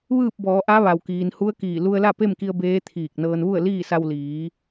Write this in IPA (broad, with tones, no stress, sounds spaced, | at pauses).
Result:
ʋ ɯː˥˨ p̚ b ɔː˩˧ ʔ a˧˥ ʋ a˩ w k iː˩ n h u˧˥ ə̯ k iː˧˩ l u˧ ə̯ l a˥˨ p e˥˨ m k i˧ ə̯ b eː˧˥ t̪ʰ iː˧˩ k̚ n ɤː˧ n ʋ u˥˨ ə̯ l iː˥˨ s a˧ w l iː˩˧